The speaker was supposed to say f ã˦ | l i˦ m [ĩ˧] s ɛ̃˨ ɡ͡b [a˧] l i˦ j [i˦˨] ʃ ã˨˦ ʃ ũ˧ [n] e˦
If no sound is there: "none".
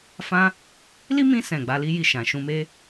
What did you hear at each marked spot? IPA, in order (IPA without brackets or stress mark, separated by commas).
ĩ˧, a˧, i˦˨, m